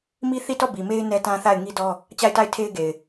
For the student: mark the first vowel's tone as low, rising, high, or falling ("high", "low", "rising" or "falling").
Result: high